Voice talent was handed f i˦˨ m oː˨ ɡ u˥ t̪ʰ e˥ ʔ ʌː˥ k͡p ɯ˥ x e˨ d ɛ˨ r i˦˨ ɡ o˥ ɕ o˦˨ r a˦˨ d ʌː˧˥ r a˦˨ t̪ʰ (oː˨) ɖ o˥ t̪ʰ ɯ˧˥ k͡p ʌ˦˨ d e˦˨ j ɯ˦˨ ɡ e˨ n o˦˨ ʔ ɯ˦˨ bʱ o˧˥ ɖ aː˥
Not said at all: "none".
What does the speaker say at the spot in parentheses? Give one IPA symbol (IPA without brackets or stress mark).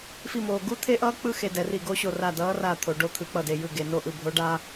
o˨